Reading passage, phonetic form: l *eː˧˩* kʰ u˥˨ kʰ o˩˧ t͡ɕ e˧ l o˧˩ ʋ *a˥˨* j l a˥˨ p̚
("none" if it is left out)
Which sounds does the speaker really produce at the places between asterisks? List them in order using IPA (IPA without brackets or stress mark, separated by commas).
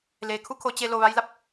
eː˩, a˧